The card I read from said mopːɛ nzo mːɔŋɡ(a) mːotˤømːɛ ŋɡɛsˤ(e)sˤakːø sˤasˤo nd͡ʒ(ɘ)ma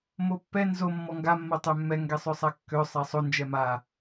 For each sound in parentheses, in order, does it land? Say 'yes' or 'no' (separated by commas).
yes, no, no